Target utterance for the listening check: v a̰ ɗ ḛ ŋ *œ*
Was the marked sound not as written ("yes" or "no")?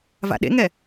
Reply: yes